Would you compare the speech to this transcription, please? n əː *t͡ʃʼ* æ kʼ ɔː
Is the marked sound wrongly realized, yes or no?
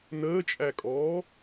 no